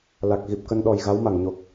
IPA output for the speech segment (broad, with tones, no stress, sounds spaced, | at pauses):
l a˨˩ k̚ ɣ i˨˩ p̚ k ə˧ n ɗ ɔ˨˩ j ɣ a˨˦ w m a˧˩ ŋ ɲ o˨˩ k̚